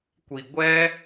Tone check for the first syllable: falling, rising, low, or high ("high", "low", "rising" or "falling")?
low